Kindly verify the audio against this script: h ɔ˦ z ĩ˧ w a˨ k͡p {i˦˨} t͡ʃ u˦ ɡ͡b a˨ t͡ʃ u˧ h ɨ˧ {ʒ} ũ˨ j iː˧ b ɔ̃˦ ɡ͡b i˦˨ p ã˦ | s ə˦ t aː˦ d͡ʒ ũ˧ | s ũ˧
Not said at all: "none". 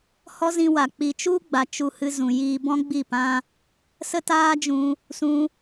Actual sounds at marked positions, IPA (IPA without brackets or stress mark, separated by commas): i˨, z